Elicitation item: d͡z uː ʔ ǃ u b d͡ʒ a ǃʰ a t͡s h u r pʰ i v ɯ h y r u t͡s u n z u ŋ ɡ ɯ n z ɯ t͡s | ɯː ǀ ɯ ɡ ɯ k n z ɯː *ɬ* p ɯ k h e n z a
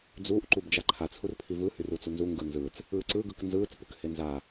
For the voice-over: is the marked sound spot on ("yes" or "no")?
no